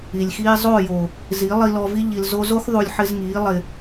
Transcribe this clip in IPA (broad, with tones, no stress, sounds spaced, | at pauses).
i˨ lʲ x iː˦ zˤ o˦˨ j o˨ | z i˨˦ lˠ i˧ l ɔ˧ v i˦ ʎ i˨ l z o˧ z o˦ x ðˤ u˧ lʲ ħ ɪ˦ z ŋ iː˨˦ lˠ ɪ˨